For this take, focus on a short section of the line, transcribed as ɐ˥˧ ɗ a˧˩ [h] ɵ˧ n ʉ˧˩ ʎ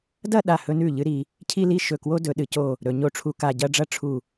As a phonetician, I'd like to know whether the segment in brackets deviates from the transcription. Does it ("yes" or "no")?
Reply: no